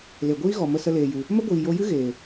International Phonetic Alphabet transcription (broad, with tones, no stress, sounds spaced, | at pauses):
l e˨ ɡʷ iː˦ ɣ ɔ˨ m ə˦ s ə˦ l eː˨ j ɨ˨ | m ə˦ ɡʷ iː˨ j o˧ j ɨ˦ ɣ eː˨